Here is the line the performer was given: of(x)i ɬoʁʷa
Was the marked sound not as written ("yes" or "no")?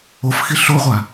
no